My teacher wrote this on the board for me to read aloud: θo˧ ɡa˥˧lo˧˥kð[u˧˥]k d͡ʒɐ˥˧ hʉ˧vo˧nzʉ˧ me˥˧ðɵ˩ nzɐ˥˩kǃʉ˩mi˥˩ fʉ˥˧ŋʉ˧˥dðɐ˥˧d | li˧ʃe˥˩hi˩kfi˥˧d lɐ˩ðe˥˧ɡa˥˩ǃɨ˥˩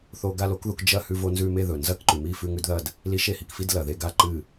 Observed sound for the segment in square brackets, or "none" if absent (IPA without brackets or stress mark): u˧